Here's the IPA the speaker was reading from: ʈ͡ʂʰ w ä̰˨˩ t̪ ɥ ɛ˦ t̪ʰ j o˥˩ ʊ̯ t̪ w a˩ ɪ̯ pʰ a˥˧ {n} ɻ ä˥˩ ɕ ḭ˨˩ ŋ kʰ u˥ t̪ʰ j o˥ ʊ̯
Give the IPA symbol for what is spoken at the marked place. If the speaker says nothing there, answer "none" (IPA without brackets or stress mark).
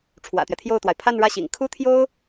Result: n